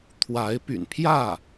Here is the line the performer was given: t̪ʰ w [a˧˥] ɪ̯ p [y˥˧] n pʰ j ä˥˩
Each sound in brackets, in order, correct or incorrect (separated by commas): correct, incorrect